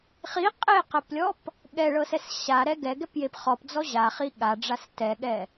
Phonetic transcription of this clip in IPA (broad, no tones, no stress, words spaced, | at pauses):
χi qʼeqɛplʲɔp | ɠɛɭɤsɛs ɕaɾɛ ɡɛɡɛpjep χɔpd͡zɔ ʑaχi ɠaɖ͡ʐas tɛɠɛ